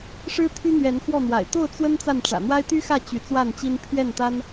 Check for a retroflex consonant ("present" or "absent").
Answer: present